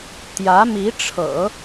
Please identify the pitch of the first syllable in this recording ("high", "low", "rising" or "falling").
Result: rising